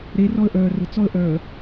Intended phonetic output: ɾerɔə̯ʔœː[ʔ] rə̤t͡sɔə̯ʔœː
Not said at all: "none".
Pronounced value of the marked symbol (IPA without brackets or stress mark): none